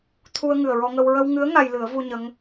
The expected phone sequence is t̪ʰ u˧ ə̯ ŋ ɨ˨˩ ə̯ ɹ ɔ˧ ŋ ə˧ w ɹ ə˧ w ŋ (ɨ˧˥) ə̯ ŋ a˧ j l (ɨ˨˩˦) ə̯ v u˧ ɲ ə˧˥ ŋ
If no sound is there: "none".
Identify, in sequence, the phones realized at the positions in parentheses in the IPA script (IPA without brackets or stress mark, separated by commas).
ɨ˧˥, ɨ˨˩˦